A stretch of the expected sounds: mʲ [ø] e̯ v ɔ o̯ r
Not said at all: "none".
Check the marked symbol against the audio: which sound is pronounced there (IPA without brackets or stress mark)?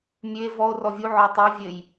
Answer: ø